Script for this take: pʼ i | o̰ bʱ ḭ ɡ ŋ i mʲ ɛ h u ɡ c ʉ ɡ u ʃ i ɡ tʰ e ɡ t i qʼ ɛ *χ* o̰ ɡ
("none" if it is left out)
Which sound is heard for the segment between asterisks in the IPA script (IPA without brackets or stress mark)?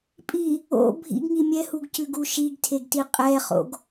χ